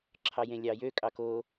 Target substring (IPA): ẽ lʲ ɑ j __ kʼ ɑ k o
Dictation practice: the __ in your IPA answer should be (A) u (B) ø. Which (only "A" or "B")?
B